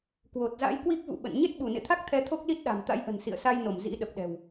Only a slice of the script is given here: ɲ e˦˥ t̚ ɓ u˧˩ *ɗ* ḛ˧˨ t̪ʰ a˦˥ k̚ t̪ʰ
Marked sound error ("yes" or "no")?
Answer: yes